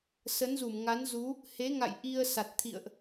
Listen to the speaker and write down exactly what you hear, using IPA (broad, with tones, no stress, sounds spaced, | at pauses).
s ə˨˦ n z u˧˩ m ŋ a˨˦ n z u˨˦ | h e˨˦ ŋ a̰˧˨ j ʔ i˧ ə̯ s a˨˩ t̚ t̪ʰ ḭ˧˨ ə̯ ʔ